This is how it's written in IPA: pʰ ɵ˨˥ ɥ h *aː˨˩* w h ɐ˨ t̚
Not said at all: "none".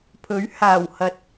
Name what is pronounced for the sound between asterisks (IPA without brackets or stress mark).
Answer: aː˨˩